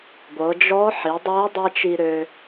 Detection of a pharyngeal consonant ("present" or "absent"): present